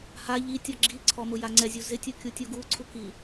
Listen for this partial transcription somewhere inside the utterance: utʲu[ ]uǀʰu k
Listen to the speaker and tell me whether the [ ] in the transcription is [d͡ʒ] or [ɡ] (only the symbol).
ɡ